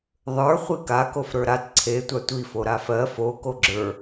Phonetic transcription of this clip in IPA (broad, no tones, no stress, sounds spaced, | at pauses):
ðˤ ə˞ χʷ i k a k o f ɾ ə˞ ɾ a t ǀʰ e tʷ a tʷ i f o ɾ a f ɜ f o k o ɡ͡ǁ ə˞